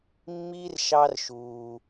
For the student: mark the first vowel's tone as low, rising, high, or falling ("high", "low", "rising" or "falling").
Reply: high